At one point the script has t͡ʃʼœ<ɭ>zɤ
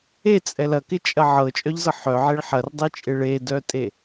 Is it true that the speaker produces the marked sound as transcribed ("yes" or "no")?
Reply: no